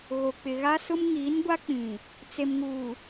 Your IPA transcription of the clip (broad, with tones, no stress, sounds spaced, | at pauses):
ɣ o˨ k͡p ɪ˨ ɣ a˦ s ʊ˦ m ŋ iː˨˦ n ɡʷ a˦ k͡p ĩ˨ | t͡s e˨ m ŋ uː˨